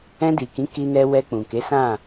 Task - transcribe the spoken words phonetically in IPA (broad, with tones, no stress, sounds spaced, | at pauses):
ɛ̃˧ d i˨ k ĩ˨˦ k i˧ n ɛ˧ w ɛ˧ k͡p ũ˨ k e˨˦ s ã˦˨